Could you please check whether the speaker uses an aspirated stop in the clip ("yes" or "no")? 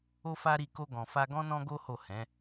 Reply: no